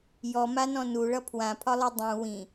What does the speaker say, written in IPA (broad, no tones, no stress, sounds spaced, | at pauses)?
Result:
j ɔ m a n ɔ̃ n u ɭ ʌ pʰ w ã pʰ ɒ lˠ u dˤ ũ w ĩ